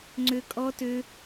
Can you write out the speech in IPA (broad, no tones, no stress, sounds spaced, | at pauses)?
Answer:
ŋ͡ǀ ø kʼ ɔ t ø